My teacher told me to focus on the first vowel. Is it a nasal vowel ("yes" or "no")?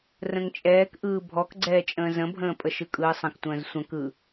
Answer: yes